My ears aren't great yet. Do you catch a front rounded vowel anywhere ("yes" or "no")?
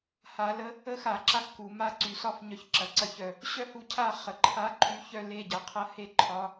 yes